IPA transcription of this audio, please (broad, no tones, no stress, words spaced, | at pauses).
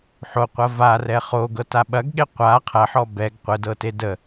ħoqʷɐ varɛ χoɡɤta ɓɐɡɠe qʷa qʰɐħɔ bɛɡ qʷədɤte də